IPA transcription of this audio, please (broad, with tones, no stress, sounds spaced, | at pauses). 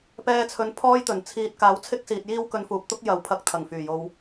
p ɛː˧ t͡sʰ ɵ˨˥ n pʰ ɔː˥ j t̪ ɵ˨˩ n t͡sʰ iː˨ t̚ k aː˨˥ w t͡sʰ ɪ˥ k̚ s iː˨ t̚ j iː˥ w k ɵ˧ n f uː˨ p̚ t̪ ʊ˥ k̚ j ɐ˨˧ w pʰ ɐ˧ k̚ t̪ʰ ɐ˨˩ ŋ f yː˨˩ j o˧ w